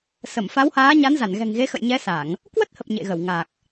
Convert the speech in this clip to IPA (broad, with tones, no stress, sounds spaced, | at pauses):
s ə˧˩ m f a˨˦ w h aː˨˦ ɲ a˨˦ n z a˧˩ n ɣ ɛ̤˨˩ ŋ ɣ e˨˦ x ə̰˧˨ j ɲ ɛ˨˦ s a˧˩˨ ŋ | k w ə˦˥ t̚ h ə˨˩ p̚ ɲ ḛ˧˨ ɣ ə˧˩ w ŋ a˨˩ k̚